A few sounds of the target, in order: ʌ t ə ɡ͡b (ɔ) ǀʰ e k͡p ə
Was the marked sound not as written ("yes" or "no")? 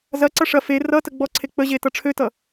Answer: no